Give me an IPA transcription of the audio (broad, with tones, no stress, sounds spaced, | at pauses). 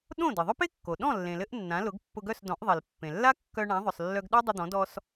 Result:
ɗ õ˥˩ d ɘ˩ ðˤ œ˥ p e˥ kː o˩ ɗ ɔ̃˥˩ lː ẽ˩ l ɘ˧ ʔ nː ã˩˥ l ʊ˩˥ ɡ pː ʊ˧ ɡ œ˥˩ s d ɔ̃˩˥ ʔ ðˤ e˩ l pː ẽ˩ lː a˥ kː œ˧ ɳ ã˩˥ ðˤ ʊ˩ sˤ lː œ˧ ɡ ɗ œ˥ dˤ ɘ˧ d̪ ɔ̃˩˥ d ɔ˧ s